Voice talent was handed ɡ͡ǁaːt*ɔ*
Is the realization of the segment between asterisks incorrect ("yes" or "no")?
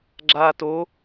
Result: yes